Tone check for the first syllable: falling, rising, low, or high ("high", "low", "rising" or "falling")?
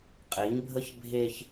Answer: rising